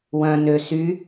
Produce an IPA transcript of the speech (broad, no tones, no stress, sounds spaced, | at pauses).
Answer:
w œ̃ n ø s y